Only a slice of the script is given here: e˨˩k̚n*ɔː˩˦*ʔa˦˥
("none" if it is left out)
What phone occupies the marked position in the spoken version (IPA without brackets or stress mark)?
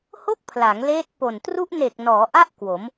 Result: ɔː˩˦